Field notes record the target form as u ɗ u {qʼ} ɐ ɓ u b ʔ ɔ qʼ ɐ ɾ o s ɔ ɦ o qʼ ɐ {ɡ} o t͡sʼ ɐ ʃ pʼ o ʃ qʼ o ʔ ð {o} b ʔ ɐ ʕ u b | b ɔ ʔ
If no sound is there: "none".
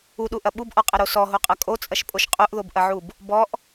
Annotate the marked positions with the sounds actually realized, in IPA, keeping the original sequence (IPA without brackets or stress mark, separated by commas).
ʔ, kʼ, o